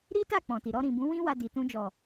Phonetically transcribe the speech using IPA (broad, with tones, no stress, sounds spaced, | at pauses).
ɾ i˦ t a˦˨ k͡p ɔ̃˨ t i˨ ɾ ɔ˧ ɾ ĩ˨ b ũ˨˦ w ĩ˦ w a˧ d i˨ t ũ˧ d͡ʒ ɔ˨